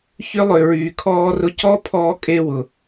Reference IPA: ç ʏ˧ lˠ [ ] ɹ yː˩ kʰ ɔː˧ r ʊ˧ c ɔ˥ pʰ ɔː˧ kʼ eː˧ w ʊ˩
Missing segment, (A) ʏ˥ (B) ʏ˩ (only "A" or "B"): B